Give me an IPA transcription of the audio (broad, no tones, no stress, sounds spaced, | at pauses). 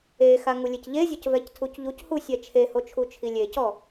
e x a ŋ u lʲ e c ʎ e zʲ ɔ c v ɛ c tʰ u c ʎ u c h u sʲ ɛ t͡ʃʰ e h o t͡ʃʰ u t͡ʃʰ i lʲ e c ɔ